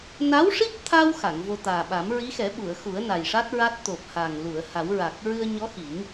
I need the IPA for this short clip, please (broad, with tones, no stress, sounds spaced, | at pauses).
n a˧˥ w ʂ i˦˥ p̚ t̪ʰ a˧ w x a˨˩˨ ŋ v o˧ t̪ aː˨˩ ɓ a˨˩˦ m ɹ i˧˥ x ɛ˨˩˦ ɓ u˨˩˨ ə̯ x u˨˩˦ ə̯ n a˨˩ j ʂ a˦˥ t̚ ɹ a˦˥ t̚ t̪ o˨˩ p̚ h a˨˩ ŋ l u˨˩˨ ə̯ h a˨˩˦ w ɹ a˨˩ k̚ ɹ ɨ˧ ə̯ ɲ ɔ˧˥ x i˨˩˦ ŋ